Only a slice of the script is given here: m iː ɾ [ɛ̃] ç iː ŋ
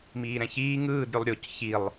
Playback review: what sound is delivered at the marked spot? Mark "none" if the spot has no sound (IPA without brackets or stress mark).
ɛ̃